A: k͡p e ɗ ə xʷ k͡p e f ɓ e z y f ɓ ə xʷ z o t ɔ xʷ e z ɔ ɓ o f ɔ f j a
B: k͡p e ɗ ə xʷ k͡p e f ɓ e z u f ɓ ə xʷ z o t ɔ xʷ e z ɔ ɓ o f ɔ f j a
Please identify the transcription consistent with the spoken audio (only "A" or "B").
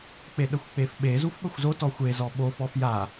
B